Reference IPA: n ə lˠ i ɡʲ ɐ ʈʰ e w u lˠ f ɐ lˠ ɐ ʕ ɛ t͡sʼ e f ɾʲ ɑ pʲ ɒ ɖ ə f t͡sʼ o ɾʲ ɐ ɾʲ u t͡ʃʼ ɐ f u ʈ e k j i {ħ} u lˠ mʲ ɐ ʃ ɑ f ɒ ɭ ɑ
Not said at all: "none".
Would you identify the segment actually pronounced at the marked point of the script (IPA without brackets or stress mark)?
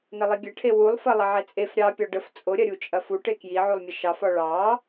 ʕ